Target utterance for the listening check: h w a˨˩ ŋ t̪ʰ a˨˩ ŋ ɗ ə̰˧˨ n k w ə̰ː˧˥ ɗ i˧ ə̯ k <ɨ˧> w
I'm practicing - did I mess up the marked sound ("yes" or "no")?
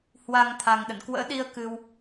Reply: no